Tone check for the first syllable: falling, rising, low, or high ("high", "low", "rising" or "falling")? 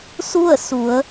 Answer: falling